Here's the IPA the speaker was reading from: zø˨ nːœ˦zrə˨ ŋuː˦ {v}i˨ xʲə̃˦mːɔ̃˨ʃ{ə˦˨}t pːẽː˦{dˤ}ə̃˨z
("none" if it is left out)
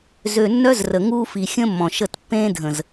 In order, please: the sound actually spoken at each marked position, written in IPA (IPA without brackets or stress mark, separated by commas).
f, ə˦˨, dʱ